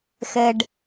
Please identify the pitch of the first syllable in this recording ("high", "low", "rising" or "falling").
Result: high